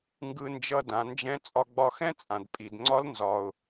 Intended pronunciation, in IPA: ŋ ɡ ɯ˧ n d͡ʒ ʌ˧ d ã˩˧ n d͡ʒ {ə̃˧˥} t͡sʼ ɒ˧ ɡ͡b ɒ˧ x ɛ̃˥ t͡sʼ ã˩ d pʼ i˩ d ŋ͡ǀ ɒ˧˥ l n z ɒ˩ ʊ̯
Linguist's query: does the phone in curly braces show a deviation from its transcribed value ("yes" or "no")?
yes